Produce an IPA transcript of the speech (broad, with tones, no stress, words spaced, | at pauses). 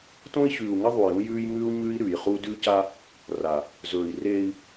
tõ˦i̯çʉː˨u̯ŋɐ˦ ðˤu˨jũ˦jʉː˦jŋʉː˦u̯ ɲʉ˦i̯ɾʉ˨jχu˦ dʉ˦ca˦ | ra˨ | zɵː˨i̯reː˦i̯